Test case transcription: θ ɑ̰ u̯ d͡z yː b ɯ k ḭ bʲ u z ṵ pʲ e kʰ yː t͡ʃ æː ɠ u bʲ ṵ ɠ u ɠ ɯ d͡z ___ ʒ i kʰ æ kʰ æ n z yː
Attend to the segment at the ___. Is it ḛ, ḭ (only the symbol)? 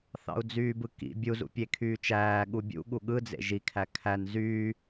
ḛ